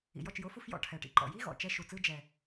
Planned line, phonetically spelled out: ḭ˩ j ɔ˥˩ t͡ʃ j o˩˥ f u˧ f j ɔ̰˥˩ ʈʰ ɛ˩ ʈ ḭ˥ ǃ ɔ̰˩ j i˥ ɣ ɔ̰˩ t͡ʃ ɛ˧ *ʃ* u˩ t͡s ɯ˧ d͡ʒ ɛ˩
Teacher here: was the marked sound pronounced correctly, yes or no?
yes